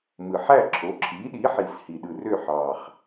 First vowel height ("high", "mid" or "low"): high